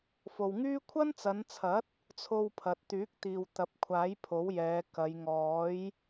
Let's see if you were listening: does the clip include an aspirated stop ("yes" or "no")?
yes